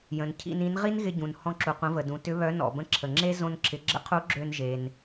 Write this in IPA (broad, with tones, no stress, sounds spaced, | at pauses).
j ə̃˩ n cʰ ḭ˧ n ĩ˧˥ n ʁ i˥ n ɣ ɪ˧ ɟ ũ˩ n h ɔ̃˧ ǁ u˩ qʷ ə̃˩˧ v ə˩ d ũ˩˧ t ʏ˧˥ β œ˧˥ n ɔ̰˩ b ə̃˧ ǁʰ ə˩ ŋ͡ǁ e˥ z õ˧ n ǁʰ ɪ˩˧ ɡ͡ǁ ə̰˧˥ qʰ u˧˥ ɡ͡ǁ ø˧ n ʒ e˩ n